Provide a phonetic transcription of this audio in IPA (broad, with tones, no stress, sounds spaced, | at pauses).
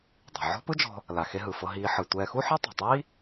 dˤ i̤˩ ʕ ɔ̤˥ p ɯ˥ d͡ʒ ɔ̤˧ | l a˩ x e˧ ɦ ɯ˩ f ɤ˧ ɦ iː˧ ħ ɯ˩ tʷ ɛː˧ x u˥ ħ ɛ˥ tˤ ṳ˩ tˤ iː˥